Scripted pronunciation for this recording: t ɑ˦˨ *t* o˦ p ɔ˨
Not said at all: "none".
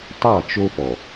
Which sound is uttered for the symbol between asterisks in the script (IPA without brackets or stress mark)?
t͡ʃ